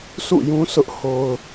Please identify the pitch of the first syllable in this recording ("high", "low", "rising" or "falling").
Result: falling